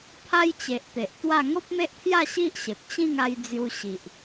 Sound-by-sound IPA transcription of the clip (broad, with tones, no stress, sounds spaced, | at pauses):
pʰ a˦ j t͡ɕ e˨ ʔ t̪ e˨ ʔ t̪ w a˥˧ ŋ o˦ p̚ m e˦ ʔ t̪ʰ j a˥˧ ɕ i˦ ʔ ɕ e˨ p̚ t͡ɕ ĩ˥˧ ŋ a˧ j d͡z j u˧ ɕ i˨ ʔ